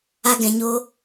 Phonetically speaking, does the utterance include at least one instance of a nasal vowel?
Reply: yes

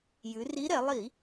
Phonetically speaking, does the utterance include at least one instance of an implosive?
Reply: no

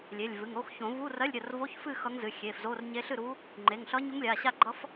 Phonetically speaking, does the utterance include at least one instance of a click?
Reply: yes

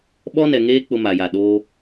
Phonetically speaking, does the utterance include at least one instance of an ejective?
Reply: no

